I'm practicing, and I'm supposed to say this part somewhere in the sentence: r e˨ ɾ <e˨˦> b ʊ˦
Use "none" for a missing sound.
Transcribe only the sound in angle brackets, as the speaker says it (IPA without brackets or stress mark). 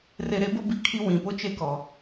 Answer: e˨˦